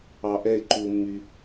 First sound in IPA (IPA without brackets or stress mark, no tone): ɑ